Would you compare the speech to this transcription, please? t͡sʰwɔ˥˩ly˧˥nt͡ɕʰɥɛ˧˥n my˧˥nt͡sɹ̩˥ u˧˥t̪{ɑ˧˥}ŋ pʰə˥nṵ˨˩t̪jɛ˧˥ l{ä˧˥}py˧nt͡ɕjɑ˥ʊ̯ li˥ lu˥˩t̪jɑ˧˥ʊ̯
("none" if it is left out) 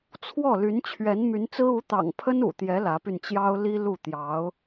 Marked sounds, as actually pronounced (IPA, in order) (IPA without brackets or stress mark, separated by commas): ɑ̰˨˩, ä˧˥